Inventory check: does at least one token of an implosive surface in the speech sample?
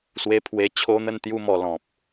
no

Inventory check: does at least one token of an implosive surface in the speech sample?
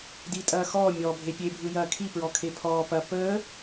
no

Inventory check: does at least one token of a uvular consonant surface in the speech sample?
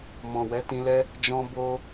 no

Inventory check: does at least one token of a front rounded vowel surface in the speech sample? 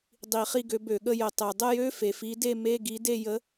yes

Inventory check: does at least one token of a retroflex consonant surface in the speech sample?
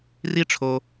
yes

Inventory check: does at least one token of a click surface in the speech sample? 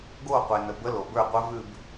no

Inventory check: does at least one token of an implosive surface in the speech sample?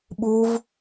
yes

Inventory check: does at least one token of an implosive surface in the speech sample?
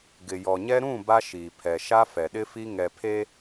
yes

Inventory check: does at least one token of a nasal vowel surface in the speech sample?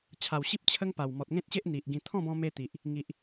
yes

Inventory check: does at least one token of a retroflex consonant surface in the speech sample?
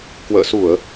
no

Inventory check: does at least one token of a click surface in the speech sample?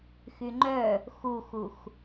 yes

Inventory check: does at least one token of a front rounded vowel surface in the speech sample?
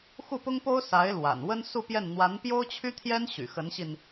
yes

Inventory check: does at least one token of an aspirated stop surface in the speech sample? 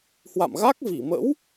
no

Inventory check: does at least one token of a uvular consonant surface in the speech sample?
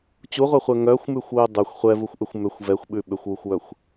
yes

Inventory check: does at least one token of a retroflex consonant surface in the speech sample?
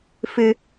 no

